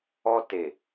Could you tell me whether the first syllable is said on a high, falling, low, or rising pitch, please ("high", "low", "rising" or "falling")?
high